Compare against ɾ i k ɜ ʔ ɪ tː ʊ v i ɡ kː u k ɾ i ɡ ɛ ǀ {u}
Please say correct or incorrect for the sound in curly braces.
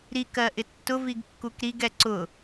incorrect